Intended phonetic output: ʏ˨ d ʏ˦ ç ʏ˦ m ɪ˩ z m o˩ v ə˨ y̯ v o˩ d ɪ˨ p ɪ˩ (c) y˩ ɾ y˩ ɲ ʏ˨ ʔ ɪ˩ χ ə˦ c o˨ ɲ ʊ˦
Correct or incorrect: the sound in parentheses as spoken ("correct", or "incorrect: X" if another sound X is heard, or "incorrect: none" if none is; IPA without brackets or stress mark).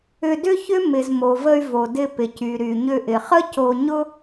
correct